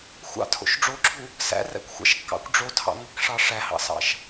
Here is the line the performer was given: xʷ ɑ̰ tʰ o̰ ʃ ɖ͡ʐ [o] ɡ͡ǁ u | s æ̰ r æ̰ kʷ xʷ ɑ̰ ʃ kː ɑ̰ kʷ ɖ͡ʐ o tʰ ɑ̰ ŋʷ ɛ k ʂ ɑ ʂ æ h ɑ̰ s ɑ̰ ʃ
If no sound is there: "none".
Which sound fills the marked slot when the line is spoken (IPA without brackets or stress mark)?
o